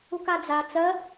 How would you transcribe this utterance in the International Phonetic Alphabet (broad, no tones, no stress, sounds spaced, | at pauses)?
u k a d͡z a t͡s ɜ